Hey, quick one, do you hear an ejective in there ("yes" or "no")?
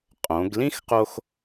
yes